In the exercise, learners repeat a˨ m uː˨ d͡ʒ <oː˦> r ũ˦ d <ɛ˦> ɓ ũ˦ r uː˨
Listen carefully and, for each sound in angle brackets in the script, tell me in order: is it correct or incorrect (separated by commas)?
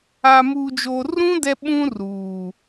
incorrect, correct